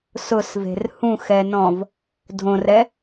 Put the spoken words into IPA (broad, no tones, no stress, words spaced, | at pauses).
sʊsve̤r hũxɛnɔ̃v | dʱõrɛ